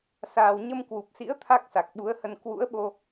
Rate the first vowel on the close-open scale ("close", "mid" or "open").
open